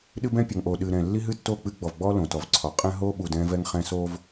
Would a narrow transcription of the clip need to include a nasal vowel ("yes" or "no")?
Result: yes